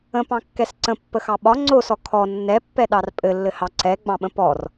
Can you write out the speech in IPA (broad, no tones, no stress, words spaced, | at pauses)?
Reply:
ə̃pɑ̃kːɛs ǀə̃pːəxɑ ɓɒ ŋ͡ǀosɔ kʰɔ nːɛpːɛɗɑr pʼɘlːɘhɑ ǀɛɡ͡bɑ̃ɓə̃ pɔr